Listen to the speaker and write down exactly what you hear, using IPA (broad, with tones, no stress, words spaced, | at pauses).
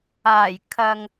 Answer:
aː˨˩jkʰɐ˨ŋ